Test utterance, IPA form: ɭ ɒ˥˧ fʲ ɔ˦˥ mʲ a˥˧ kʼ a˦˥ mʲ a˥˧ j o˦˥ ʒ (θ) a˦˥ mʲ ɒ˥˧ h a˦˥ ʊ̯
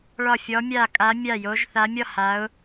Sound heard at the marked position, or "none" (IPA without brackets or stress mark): θ